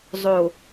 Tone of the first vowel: low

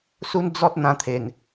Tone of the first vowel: high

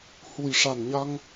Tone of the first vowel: low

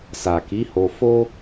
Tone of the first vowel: low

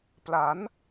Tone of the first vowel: rising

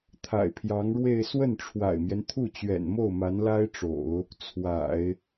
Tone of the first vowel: low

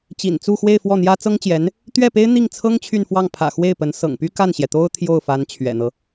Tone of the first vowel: low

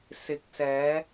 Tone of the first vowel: rising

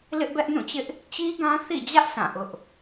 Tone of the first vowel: high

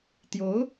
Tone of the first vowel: rising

